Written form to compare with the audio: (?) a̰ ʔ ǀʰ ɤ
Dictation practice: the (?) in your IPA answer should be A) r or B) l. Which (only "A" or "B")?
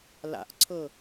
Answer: B